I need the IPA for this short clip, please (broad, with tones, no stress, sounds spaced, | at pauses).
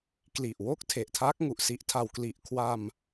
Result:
k l i˨˩ ʔ w o˥˩ k̚ tʰ e˨˩ ʔ tʰ aː˦˥ k̚ ŋ u˨˩ ʔ s i˦˥ ʔ tʰ a˧ w k l i˨˩ ʔ kʰ w a˧ m